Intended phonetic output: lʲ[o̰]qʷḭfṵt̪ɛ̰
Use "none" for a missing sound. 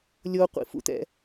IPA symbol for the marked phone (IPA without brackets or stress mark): o